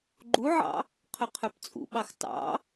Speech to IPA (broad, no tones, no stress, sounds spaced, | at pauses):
ɡ͡ǃ u ʕ ɑ̰ | qʰ ɵ qʰ œ p t͡sʼ ṵ ɓ ɑ x t ɑ̰